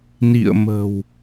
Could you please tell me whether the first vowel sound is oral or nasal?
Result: oral